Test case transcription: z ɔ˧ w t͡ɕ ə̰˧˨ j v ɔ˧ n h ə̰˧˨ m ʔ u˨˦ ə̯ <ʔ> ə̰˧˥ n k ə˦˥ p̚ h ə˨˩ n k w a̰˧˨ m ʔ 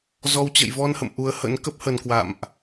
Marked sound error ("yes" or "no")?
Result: yes